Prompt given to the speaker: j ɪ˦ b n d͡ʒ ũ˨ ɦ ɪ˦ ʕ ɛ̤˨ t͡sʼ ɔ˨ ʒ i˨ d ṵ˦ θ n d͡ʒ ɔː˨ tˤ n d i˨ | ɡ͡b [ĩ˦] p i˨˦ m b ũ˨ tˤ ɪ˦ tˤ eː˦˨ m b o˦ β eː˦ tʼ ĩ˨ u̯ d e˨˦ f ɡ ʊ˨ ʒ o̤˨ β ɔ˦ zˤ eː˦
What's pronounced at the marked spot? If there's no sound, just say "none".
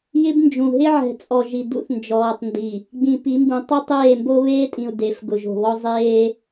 ĩ˨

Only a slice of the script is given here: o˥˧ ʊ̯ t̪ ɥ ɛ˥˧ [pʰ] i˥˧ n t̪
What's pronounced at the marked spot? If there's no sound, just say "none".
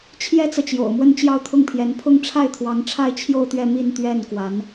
m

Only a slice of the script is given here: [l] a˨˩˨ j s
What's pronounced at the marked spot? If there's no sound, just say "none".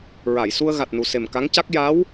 ɹ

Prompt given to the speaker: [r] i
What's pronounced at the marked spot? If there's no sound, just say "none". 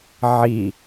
ʕ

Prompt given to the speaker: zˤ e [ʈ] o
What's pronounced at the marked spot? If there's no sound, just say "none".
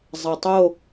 tˤ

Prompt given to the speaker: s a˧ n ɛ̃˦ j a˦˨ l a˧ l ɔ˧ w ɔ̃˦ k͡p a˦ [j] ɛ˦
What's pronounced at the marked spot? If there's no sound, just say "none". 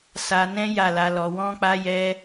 j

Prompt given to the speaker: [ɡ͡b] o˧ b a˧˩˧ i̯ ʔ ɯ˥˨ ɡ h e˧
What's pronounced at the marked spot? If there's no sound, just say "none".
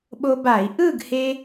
ɓ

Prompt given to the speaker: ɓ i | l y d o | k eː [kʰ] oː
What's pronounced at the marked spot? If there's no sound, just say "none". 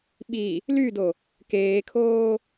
kʰ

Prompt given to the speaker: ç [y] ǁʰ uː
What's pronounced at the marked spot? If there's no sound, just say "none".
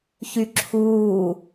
y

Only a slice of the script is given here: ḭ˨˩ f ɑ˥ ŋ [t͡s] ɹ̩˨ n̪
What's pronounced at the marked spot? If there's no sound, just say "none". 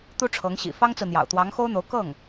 t͡s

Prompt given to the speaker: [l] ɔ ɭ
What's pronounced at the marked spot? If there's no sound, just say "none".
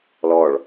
l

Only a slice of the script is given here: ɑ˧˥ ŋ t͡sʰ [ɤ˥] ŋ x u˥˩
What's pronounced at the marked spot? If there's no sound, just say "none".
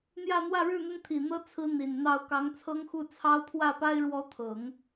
ɤ˥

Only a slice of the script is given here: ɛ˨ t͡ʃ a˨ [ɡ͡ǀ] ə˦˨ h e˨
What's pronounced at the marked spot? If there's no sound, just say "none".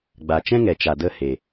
d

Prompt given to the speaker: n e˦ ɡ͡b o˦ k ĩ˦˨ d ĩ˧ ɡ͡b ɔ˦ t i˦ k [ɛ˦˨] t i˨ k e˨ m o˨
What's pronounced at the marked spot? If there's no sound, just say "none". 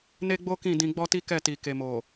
ɛ˦˨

